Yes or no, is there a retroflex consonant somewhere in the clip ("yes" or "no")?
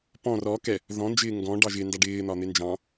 yes